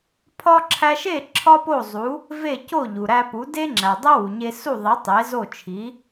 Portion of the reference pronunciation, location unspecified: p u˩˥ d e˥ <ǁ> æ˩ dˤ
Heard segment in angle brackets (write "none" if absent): ŋ͡ǁ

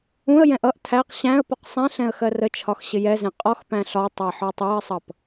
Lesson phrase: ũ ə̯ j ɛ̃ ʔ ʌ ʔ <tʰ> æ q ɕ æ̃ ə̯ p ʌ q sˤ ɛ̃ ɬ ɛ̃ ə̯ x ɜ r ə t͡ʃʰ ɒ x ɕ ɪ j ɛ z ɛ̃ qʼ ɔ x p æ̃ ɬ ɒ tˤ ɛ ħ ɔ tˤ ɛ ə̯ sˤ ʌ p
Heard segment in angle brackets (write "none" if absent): tʰ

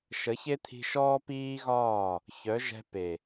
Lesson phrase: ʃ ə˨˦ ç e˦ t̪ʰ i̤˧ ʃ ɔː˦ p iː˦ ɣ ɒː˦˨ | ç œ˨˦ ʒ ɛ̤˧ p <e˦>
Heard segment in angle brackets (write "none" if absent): e˨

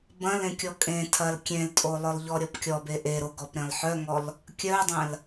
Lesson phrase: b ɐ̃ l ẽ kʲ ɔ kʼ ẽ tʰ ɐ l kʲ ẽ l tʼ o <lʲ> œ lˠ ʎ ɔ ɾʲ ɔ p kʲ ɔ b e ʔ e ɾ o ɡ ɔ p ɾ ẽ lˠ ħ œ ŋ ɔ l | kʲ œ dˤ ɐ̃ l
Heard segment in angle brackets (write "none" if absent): lˠ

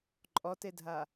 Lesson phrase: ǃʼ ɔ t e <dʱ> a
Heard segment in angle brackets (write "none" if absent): dʱ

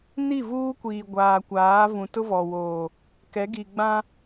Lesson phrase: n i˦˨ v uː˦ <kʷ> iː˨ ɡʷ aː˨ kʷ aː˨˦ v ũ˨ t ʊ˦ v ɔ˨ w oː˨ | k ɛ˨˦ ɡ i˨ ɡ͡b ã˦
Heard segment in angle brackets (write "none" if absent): kʷ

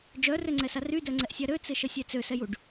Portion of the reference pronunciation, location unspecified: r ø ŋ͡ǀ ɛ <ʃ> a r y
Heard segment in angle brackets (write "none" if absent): s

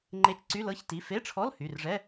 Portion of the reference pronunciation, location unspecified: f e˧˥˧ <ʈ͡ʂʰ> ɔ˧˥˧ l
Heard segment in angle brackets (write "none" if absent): ʈ͡ʂʰ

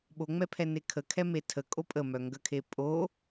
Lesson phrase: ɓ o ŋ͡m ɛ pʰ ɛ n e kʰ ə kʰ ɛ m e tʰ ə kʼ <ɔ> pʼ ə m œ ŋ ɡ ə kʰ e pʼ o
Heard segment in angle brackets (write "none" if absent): o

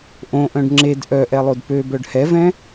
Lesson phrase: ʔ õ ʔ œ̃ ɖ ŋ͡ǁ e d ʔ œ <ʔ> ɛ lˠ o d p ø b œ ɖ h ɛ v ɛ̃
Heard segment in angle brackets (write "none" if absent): ʔ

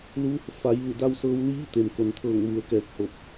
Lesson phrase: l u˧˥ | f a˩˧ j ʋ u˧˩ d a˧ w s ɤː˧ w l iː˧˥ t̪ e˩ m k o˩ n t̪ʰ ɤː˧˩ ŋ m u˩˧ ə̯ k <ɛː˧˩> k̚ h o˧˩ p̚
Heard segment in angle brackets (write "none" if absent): ɛː˧˩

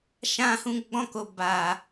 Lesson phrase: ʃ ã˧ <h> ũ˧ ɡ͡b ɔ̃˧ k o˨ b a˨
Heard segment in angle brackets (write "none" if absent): h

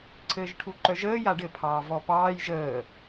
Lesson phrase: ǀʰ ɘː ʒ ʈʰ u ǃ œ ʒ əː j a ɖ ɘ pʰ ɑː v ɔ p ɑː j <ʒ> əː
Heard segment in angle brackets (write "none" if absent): ʒ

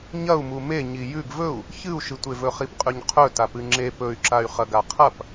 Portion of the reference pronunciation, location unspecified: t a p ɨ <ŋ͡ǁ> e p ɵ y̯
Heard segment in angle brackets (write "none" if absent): ŋ͡ǁ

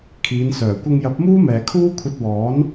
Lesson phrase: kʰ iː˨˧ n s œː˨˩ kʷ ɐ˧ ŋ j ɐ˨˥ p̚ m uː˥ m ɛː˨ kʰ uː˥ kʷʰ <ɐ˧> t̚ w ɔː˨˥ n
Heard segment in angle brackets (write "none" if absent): ɐ˧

